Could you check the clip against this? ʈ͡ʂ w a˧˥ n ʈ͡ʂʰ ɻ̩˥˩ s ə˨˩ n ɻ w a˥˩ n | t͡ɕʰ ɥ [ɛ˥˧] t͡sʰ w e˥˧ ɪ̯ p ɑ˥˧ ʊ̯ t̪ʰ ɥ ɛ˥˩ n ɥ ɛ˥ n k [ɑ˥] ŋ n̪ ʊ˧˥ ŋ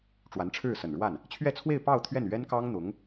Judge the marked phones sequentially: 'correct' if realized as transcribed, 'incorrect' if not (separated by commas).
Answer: correct, correct